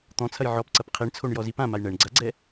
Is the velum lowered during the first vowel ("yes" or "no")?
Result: yes